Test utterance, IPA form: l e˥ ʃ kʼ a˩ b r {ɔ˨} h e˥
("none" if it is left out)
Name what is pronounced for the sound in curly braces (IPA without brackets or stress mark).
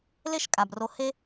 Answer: o˨